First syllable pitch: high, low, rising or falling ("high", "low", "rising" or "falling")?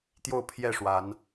falling